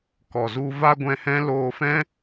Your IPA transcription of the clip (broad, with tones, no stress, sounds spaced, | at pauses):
k ɔ˨ z u˧ v a˦ ɡʷ ɛ̃˧ h ɛ̃˦ l oː˧ f ɛ̃˦